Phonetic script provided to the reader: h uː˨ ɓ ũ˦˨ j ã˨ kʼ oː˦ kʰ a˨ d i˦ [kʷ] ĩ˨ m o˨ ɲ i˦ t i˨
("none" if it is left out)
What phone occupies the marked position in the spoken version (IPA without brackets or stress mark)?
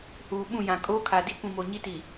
kʷ